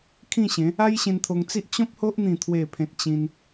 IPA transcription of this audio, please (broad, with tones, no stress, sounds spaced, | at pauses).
kʰ ĩ˥˧ ɕ ẽ˨˦ | a˦ j ɕ ẽ˧ n t̪ʰ o˧ ŋ t͡s i˦ ʔ t͡ɕ ɔ̃˦ p̚ h o˦ ʔ n̪ ĩ˥˧ t̪ʰ w e˥˧ pʰ ẽ˦ t̚ t͡ɕ ĩ˧ n